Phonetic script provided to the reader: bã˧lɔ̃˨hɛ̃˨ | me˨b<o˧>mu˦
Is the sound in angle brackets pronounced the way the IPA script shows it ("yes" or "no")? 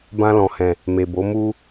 no